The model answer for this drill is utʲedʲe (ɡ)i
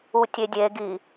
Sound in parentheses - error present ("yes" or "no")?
no